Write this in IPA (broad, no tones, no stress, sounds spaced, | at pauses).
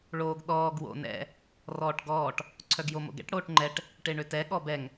ɭ oː ɡ ɗ ɔː ɡ w o̰ n ɛ̰ | r ɔː ʈ ɡ ɔː ʈ | ǀʰ œ ɡ j o m o̰ ɡ ɛ̰ ʈ ɽ oː ʈ ŋ͡ǃ ɛ ʈ | ʈ e ɳ ø t ɛ ɠ ɔ b ɛ ŋ